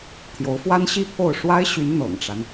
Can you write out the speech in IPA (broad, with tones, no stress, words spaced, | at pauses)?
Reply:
t̪ʰjo˧˥ʊ̯fwa˥nɕi˥ pʰo˥˩ʊ̯ ʂwa˥ɪ̯ɕy˧˥n n̪ɤ̰˨˩ŋʈ͡ʂa˦n